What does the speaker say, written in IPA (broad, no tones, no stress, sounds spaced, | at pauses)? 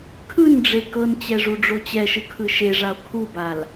kʰ ɯ n ɖ͡ʐ e k ɤ n t͡ɕ ɛ ʐ u ɖ͡ʐ o t͡ɕ ɛ ʃ ɯ kʰ ɯ ʃ e ʐ a o̯ kʰ u b a l